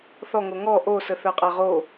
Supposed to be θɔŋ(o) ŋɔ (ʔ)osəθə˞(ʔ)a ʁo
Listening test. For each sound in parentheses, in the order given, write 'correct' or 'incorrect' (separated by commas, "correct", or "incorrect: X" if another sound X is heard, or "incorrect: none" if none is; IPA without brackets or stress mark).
correct, correct, incorrect: qʼ